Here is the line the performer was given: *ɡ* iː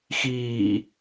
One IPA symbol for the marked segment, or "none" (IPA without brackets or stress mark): x